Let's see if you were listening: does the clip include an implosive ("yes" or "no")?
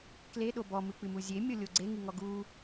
yes